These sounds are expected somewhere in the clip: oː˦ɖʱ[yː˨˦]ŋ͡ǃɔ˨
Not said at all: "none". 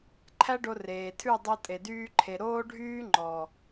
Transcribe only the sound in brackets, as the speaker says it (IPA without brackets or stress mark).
yː˦